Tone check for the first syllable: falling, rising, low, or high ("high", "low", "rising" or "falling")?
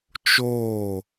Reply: falling